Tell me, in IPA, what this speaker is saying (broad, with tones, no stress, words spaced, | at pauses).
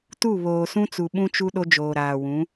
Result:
tu˦˨ βoː˨sũ˦t͡su˨ ɓũ˦t͡ʃu˦ ɗo˦d͡ʒoː˨ ɾaː˨wũ˨˦